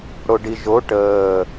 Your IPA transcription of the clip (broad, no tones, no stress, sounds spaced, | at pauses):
ɽ o ɖ i ʒ o ʈ əː